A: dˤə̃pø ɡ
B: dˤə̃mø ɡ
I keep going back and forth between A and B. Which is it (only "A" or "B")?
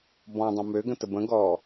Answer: B